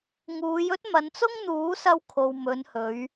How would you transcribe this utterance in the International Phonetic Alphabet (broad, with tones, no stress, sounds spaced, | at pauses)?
ŋ uː˨˧ j ɵ˥ t̚ m ɐ˨˧ n t͡s ʊ˥ ŋ n̪ uː˨˥ s ɐ˧ w kʰ o˨ w m ɵ˨˧ n h ɵ˨˧ ɥ